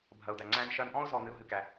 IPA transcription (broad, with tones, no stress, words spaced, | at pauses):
bʱɐ˨ʊ̯d̪æ˨ ŋ͡ǀæ̃˧nʃɐ˧nʔɔ̃˦ʊ̯ zɔ˧n̪ɨ˧ʊ̯ɦɨ˧kæ˧